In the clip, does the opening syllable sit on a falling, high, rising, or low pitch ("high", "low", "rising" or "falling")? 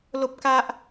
high